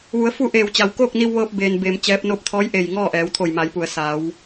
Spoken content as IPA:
ʋu˩˧ə̯fu˥˨ʔeː˧˩wt͡ɕa˩w koː˥˨k̚ni˧wʋɤː˧p̚ beː˧nbeː˧mt͡ɕɛː˧˥p̚ no˧p̚t̪ʰɔː˧˥jʔe˧˩j ŋɔː˥˨ʔɛː˩˧wt̪ʰo˧˩j ma˩˧jpu˩ə̯ saː˩˧w

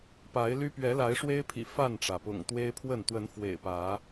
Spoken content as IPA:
pa˨˦ɪ̯ly˦ pɥɛ˨˦la˨˦ɪ̯ʂwe˦ɪ̯pʰḭ˨˩ fa˥˨nʈ͡ʂä˩pʊ̰˨˩ŋ t̪we˦ɪ̯pʰwə˥˨n t̪wə˨˦nfwḛ˨˩ɪ̯pä˨˦

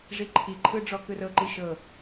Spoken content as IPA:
ʐiǃʰiǃʰɯ ɖ͡ʐɔkɯrɤǃi ʃɤ

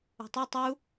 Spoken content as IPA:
ṳtˤe tˤu

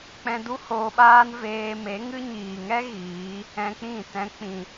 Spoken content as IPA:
k͡pɛ̃˧du˦hoː˧ɓaː˦n veː˧me˨˦ŋɨ˦ ɲiː˨ŋɛ˦ ɣiː˨˦ | ɛ̃˧k͡pĩ˦˨tɛ̃˧ k͡pĩ˨

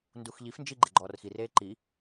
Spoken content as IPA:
nduxʎifnd͡ʒi ɡ͡ǃeɡ͡ǃɔːrxireː ǃi

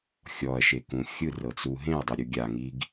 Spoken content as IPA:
xʲɔɐ̯ʃekũ xʲɯrɤt͡su ɦẽɐ̯dˤɯɾʲu ɡʲaŋiɡ

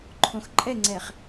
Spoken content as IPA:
ǃʰõxǃʼɛŋ͡ǀɛχ

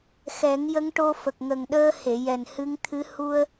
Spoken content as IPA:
xɛ˨˩˦ŋjə˧˥ŋʈo˧ fə˨˩k̚ŋə˨˩ŋ ɗəː˧ he˨˩˨jɛ˨˩nhɨ˧˥ŋt̪ʰɨ˧˥ hu˧ə̯

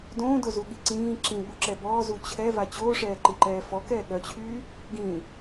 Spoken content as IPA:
dõːdozuɠi ǀĩː ǁĩɠuǁɛ bɔːzu t͡ɕʰɛva t͡ɕoːʂɛːǃiǃɛː fɔkɛː ɠœt͡ɕʰyː | ɡĩ

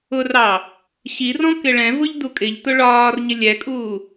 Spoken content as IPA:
ʊrɑ | ɕirɔ̃ kɪɭɛ̃vʊʎ dukʼɪʎtʊ ɭɒːrɲɪ lʲɛkʼuː

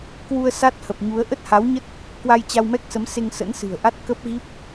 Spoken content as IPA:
kwu˧ə̯sa˦˥t̚hə˨˩p̚ɲu˨˦ə̯ ʔə˦˥t̚ha˨˦wɲə˦˥t̚ | kwa˧jt͡ɕa˧wmɛ˦˥k̚sə˨˦m se˧ŋsə̰˧˥nsɨ̤˨˩ə̯ʔa˦˥t̚ kə˦˥p̚ɣi˦˥p̚

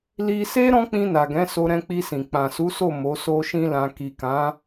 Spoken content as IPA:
li˧se˦ ɾɔ̃˦k͡pĩ˧na˨ ɡɛ̃˨˦so˧ ɾɛ̃˧k͡pi˧sĩ˨ k͡pã˨su˨˦so˦˨ mo˨˦so˦ʃĩ˦lã˧ ki˨kã˨˦

